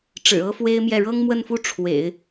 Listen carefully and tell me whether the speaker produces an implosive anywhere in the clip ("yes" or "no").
no